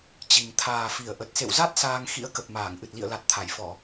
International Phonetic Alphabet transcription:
t͡ɕ i˨˩ ŋ t̪ʰ aː˨˩ f i˧˩ ə̯ ʔ ə˨˩ t̚ s ḛ˧˨ w z a˦˥ t̚ s aː˧ ŋ x ḭ˧˥ ə̯ k ə˨˩ p̚ m aː˧˩ ŋ ʔ ɨ˨˩ t̚ l ḭ˧˨ ə̯ l a˨˩ t̚ t̪ʰ a˧˩ j f ɔ˧˩˨

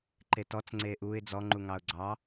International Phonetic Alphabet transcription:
ǃ e t ɔ t͡s ŋ͡ǀ e ʔ u ɪ̯ d͡z ɔ ŋ͡ǃ u ŋ ɑ ʊ̯ ɡ͡ǀ ɑ

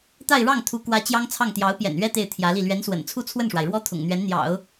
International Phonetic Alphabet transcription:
t̪ a˥˧ ɪ̯ ɻ ɑ˥˩ ŋ t̪ʰ u˧˥ k w ä˧˥ t͡ɕ j ɑ˥ ŋ t͡sʰ ɑ˥˩ ŋ t̪ j ɑ˧˥ ʊ̯ p j ɛ̰˨˩ n ɥ ɛ˥ t̪ e˥˩ ɪ̯ t̪ʰ j ä˧˥ l i˥˩ l ɥ ɛ˧˥ n s w ə̰˨˩ n t͡sʰ u˥˧ t͡sʰ w ə˥˩ n ʂ w a˩ ɪ̯ ɻ w ɔ˥ t̪ʰ ʊ̰˨˩ ŋ n̪ ɥ ɛ˧˥ n n̪ j ɑ̰˨˩˦ ʊ̯

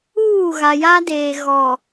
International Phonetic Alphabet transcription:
uː˦˨ ɣ a˨ j a˦ d eː˨ ɣ ɔ˨

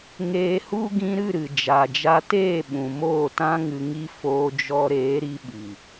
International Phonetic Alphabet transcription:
ŋ eː˧ h u˦ ɡ ĩ˧ ɾ ɨ˦˨ ɾ ɨ˨ d͡ʒ a˨ d͡ʒ a˧ t eː˦˨ ɓ ũ˨ m oː˦˨ t ã˦ ŋ ɨ˧ ŋ i˦ f oː˧ d͡ʒ ɔ˧ ɾ eː˨˦ ɾ i˧ ɓ i˨

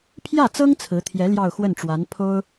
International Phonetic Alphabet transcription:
pʰ j ä˥˩ t͡s ɤ˥ ŋ t͡sʰ ɹ̩˧˥ t̪ʰ j ɛ˧˥ l j ɑ˥˧ ʊ̯ x w ə˥˩ n ʈ͡ʂ w a˧˥ n pʰ o˥ ʊ̯

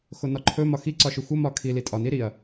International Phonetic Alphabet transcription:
x o n ɒ ǃʰ ɵ m ɒ x i ǀ ɒ ʃ ɵ xʷ ə m ɒ kʰ i l i tʼ ɒ n i ɾ i ɐ̯

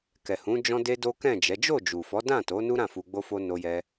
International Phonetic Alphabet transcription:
k ɛ˨ h ũ˨˦ d͡ʒ ɔ̃˦ d e˦ d o˦ k ɛ̃˦˨ d͡ʒ ɛ˨˦ d͡ʒ o˦˨ d͡ʒ u˨ f ɔ˨˦ d ã˦˨ t o˨˦ n u˦ ɾ ã˦˨ f u˧ ɡ͡b o˦ f o˦ n o˧ j ɛ˧

